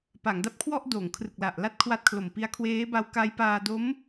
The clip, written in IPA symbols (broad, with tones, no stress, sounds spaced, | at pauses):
p a˩˦ ŋ d a˦˥ p̚ kʰ w ɔ˥˩ ʔ d oː˩˦ ŋ kʰ r ɯ˨˩ k̚ l a˨˩ ʔ l a˥˩ t̚ kʰ w a˦˥ t̚ kʰ l o˨˩ m p i˦˥ a̯ kʰ w eː˦˥ b a˧ w k a˦˥ j p aː˧ d o˦˥ m